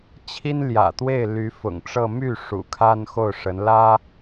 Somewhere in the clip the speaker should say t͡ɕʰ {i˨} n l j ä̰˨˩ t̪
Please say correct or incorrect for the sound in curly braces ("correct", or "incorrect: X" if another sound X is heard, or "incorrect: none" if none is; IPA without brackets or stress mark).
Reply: incorrect: i˥